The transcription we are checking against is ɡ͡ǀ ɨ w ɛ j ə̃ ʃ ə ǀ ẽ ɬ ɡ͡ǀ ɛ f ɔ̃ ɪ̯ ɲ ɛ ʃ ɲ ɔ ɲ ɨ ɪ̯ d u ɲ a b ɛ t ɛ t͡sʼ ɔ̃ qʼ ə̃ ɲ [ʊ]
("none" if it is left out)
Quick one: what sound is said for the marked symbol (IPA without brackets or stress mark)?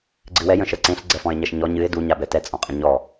ɔ